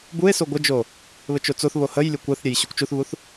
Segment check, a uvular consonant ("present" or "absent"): absent